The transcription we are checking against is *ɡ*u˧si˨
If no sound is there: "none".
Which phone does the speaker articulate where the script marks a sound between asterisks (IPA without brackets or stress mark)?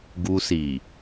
ɡ